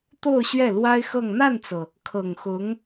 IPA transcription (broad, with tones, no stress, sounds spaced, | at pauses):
t̪ o˥˧ ʊ̯ ɕ ɥ ɛ˥˩ l w a˥ ɪ̯ x ɤ˥˧ ŋ n̪ a˥˩ n t͡s ɤ˩ | kʰ ɤ˨˩ ŋ x ʊ˧˥ ŋ